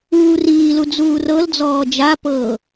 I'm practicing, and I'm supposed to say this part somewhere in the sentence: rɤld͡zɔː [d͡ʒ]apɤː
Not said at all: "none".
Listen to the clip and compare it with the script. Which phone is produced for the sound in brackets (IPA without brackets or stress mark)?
d͡ʒ